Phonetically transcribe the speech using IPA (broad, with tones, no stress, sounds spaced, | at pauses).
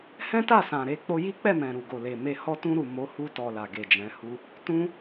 h ɛ̃˦ t a˦˨ s ã˨ ɾ e˧ k͡p o˧ j i˦ k͡p ɛ˦˨ m ɛ̃˨ ɾ u˨ ɡ o˨ l e˨ m e˧ h ɔ˧ t ũ˧ ɾ u˨ m o˨˦ h u˧ t ɔ˨ l a˨ ɡ e˨ d͡ʒ ɛ̃˨˦ h u˦ | t ũ˦